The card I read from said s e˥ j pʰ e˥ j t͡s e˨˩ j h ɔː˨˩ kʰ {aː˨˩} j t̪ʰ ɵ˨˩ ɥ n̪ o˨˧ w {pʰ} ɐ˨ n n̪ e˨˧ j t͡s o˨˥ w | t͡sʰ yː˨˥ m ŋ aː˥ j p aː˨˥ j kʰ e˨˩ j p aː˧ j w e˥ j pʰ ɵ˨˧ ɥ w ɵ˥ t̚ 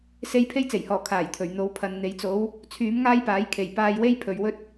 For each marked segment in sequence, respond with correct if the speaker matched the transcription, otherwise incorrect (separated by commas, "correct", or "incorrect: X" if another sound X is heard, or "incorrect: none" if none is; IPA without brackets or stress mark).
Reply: correct, correct